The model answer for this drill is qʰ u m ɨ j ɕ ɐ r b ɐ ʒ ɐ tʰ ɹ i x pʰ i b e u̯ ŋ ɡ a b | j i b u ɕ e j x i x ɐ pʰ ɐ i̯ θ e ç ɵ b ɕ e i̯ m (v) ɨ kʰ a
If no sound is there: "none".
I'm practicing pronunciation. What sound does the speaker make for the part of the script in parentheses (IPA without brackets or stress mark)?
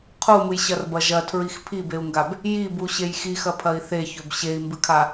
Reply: b